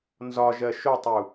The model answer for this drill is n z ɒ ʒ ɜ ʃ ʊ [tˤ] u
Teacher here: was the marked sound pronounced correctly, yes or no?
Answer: yes